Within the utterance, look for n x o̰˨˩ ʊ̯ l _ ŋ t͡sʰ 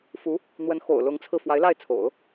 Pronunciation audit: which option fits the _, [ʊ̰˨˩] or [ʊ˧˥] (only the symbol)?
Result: ʊ˧˥